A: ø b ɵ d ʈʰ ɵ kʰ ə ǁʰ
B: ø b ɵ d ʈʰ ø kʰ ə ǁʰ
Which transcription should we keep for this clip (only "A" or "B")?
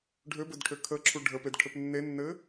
B